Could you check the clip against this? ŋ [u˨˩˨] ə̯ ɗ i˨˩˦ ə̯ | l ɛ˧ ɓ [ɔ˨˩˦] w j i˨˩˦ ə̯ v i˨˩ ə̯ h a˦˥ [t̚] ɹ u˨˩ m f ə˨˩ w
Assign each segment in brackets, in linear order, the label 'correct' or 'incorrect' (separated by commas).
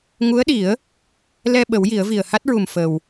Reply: incorrect, incorrect, correct